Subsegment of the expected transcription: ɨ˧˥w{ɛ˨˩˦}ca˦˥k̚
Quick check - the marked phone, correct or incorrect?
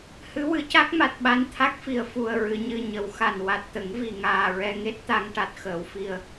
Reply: incorrect: ɨ˨˩˦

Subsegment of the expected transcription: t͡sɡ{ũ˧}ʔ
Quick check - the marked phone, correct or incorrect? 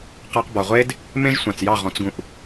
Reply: correct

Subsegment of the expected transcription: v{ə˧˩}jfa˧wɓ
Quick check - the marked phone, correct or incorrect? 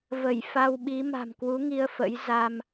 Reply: correct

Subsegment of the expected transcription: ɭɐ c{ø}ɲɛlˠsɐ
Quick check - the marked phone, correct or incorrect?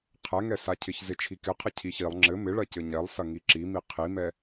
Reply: incorrect: ɘ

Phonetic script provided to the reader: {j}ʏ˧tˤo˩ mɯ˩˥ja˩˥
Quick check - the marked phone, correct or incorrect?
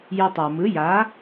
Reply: correct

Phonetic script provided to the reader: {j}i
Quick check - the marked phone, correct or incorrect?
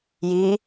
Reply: correct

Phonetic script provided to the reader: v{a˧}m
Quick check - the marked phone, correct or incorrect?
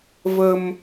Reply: incorrect: ə˧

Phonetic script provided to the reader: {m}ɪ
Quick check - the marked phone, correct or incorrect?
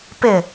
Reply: incorrect: p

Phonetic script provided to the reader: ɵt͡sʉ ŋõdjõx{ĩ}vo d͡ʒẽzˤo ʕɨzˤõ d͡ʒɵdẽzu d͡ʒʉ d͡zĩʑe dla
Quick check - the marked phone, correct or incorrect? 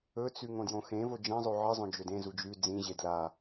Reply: incorrect: ẽ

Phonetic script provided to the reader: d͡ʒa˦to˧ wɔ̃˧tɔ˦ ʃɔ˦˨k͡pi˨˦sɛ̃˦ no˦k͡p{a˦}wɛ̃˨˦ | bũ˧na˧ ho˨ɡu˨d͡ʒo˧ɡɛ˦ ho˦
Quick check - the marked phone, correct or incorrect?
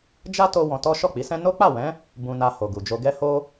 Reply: incorrect: a˦˨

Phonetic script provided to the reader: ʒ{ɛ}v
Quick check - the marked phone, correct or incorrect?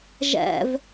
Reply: incorrect: ɛ̰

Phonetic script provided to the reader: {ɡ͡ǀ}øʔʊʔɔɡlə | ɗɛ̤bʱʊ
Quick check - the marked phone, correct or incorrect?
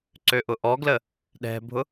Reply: incorrect: ǀ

